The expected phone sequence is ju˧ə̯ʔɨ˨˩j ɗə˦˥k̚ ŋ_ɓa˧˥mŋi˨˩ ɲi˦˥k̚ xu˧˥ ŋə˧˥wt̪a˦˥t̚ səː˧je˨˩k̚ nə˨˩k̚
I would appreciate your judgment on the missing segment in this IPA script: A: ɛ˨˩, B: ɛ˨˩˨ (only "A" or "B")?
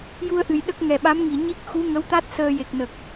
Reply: A